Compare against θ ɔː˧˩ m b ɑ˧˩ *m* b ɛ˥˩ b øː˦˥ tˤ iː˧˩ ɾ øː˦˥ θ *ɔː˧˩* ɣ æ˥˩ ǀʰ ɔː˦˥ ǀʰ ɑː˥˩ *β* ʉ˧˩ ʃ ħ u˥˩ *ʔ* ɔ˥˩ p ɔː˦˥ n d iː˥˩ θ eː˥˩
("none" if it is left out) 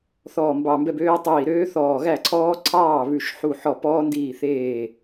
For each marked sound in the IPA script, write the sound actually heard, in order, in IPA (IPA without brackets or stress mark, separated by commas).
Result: m, ɔː˧˩, β, ħ